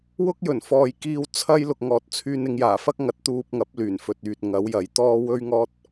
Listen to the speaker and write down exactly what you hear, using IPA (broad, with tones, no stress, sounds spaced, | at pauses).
w ʊ˥ k̚ j ɵ˨˩ n f ɔː˨ j k iː˧ w t͡sʰ ɐ˥ j l ʊ˨ k̚ ŋ ɔː˨ t̚ t͡sʰ yː˧ n ɪ˨˧ ŋ j aː˨˩ f ɐ˥ k̚ ŋ ɐ˨˥ t̚ t̪ uː˧ p̚ ŋ ɐ˨˥ p̚ l yː˨˩ n f ɵ˨ t̚ yː˨ t̚ ŋ ɐ˨˥ w j ɐ˨˥ j t̪ ɔː˥ w ɵ˥ ɥ ŋ ɔː˥ t̚